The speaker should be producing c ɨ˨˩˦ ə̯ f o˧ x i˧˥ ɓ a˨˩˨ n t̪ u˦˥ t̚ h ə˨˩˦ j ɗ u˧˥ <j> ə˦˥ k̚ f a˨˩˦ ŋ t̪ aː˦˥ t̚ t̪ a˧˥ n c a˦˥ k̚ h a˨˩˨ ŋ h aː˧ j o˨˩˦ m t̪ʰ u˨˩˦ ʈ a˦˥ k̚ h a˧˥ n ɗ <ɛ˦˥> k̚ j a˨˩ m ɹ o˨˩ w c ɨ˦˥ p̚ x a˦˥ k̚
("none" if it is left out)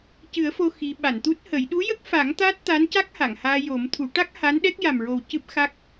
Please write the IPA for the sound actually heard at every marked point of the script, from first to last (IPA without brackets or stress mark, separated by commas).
j, ɛ˦˥